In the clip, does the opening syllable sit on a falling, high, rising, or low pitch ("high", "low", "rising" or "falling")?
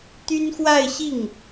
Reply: high